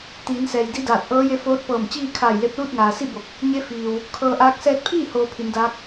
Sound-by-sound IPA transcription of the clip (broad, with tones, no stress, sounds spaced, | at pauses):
t̪ iː˩˧ n s ɛː˩ j d i˧˥ d aː˧˩ t̚ ʔ ɤː˧˥ j e˧˥ f oː˧˥ t̚ p ɤː˧˩ m t͡ɕ iː˥˨ kʰ aː˧˩ j l e˧ p̚ l uː˥˨ t̚ ŋ aː˩ s i˥˨ b o˧˩ k̚ | ɲ e˧˥ f iː˩ w | kʰ ɤː˧ ʔ aː˧˥ k̚ s ɛː˧ t̚ pʰ iː˥˨ h oː˧ pʰ i˩˧ n d aː˧˥ k̚